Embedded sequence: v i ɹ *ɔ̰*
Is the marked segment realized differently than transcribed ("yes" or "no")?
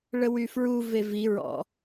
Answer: no